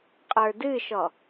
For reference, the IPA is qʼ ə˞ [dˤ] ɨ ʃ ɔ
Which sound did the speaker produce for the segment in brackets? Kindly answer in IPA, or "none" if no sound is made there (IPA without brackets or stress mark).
d